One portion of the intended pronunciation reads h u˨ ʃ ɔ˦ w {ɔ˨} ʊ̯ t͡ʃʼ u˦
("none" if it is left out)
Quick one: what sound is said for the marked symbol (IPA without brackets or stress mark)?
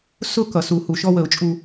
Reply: ə˨